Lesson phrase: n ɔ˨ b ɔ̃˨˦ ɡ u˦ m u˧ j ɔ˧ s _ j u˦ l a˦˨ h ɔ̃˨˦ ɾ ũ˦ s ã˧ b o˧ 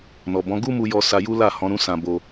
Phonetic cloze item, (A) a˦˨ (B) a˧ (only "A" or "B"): B